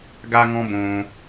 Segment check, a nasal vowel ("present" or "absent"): present